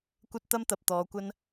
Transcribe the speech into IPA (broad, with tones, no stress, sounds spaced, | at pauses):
kʷ ɐ˧ t̚ t̪ ɐ˥ m t̪ ɐ˨ p̚ t̪ ɔː˨˧ kʷ ɐ˥ n